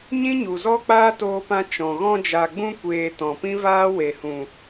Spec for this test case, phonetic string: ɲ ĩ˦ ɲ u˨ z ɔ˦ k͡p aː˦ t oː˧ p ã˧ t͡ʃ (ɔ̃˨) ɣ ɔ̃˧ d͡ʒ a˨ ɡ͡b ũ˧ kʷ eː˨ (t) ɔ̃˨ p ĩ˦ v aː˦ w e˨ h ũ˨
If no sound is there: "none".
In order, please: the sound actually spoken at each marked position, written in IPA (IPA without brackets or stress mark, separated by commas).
ɔ̃˨, t